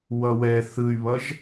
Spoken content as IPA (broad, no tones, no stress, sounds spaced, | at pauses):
w ʌ w ɛ θ ɯ y̯ β ʌ ʒ